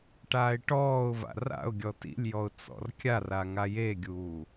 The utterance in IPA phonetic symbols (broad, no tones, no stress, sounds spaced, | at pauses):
ʈ aː ɪ̯ ʈ ɔː ʊ̯ v a̰ r a̰ ʊ̯ ɡʲ ɔ t ḭ lʲ j ɔ ʊ̯ t͡s ɔ̰ r kʲ a r a ŋ a j e ɡʲ uː